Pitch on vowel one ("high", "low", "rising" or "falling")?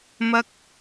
high